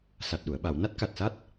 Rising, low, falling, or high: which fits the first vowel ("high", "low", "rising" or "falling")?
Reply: low